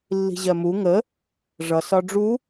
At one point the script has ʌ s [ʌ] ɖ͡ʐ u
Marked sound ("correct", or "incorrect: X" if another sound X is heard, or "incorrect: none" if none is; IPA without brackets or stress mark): incorrect: ɒ